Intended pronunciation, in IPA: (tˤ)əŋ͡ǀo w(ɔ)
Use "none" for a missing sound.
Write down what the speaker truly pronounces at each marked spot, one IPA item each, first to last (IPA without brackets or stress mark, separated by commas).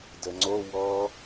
d, ɔ